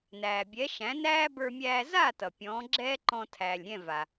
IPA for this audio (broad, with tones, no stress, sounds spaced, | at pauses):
n æː˩ bʲ ɛ˩˥ ʃ æ̃˩˥ n æː˥ b ə˞˧ mʲ æː˧ z a˥˩ t ʌ˩ pʲ ɔ̃ː˩˥ ɡ͡ǁ ɛː˥ ǃ ɔ̃˧ tʰ æː˩ lʲ ɾʲ ɛ̃˥˩ v a˩